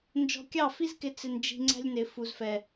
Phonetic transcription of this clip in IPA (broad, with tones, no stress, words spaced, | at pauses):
nd͡ʒɔ̤˧kʲɑ˦˨fi˦zkɪ˧ t͡sɪ˧nd͡ʒi̤˧ŋ͡ǀæ̤˦lʲnɪ˨ fu˨zfɛ˨